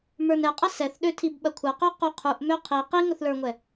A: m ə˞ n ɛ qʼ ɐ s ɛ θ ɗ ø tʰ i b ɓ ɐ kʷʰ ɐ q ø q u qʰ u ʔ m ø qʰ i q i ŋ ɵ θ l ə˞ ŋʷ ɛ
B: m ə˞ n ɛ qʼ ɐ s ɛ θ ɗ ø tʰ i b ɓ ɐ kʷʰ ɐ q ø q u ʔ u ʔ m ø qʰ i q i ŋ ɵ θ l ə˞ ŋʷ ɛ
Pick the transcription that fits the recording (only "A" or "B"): A